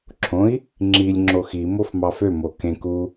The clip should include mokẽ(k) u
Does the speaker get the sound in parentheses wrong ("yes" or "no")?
no